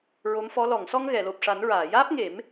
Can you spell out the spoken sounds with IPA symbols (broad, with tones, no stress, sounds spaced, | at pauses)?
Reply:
ɹ o˧˥ m f ɔ˧˥ l ɔ˨˩˨ ŋ s ɔ˧ ŋ ɣ ɛ˨˩˨ l o˨˩ p̚ ʂ a˨˩˦ n ɹ aː˨˩˨ j aː˦˥ p̚ ŋ e˨˩˦ m